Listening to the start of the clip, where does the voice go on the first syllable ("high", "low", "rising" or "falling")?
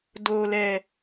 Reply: low